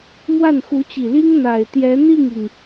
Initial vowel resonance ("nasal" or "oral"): oral